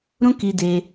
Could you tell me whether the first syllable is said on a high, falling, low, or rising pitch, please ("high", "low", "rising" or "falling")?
high